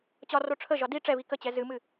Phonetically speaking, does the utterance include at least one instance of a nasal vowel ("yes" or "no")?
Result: no